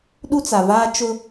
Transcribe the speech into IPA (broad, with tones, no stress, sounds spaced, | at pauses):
ɗ u˦ t͡s a˨ v aː˦ t͡ʃ ʊ˦